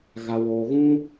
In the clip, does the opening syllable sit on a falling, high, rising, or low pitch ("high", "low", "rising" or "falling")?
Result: high